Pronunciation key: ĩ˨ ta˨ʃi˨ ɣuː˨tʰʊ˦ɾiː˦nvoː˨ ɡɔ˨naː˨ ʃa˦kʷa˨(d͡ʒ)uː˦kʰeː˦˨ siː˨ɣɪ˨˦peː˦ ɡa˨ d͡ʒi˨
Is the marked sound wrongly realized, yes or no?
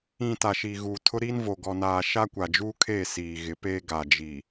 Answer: no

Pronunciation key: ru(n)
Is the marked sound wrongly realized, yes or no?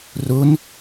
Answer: no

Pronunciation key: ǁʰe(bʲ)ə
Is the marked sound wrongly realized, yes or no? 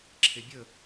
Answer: no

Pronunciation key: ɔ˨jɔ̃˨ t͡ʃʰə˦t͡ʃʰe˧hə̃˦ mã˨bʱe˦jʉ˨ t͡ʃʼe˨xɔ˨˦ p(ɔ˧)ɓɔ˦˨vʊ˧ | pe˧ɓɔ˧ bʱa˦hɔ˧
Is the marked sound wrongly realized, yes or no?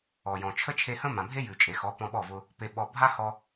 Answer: yes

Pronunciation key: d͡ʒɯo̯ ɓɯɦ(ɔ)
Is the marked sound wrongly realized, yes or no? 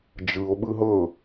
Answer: yes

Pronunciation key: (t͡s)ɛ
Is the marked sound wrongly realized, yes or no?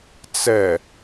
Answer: no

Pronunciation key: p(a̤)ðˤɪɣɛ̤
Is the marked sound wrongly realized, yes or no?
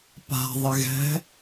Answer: no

